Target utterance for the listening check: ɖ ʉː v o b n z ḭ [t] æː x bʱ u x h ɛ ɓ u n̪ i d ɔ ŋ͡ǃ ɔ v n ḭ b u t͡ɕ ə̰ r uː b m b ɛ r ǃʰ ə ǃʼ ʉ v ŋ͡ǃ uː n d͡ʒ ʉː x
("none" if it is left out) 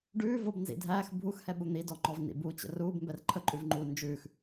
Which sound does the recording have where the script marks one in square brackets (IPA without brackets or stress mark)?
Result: dʱ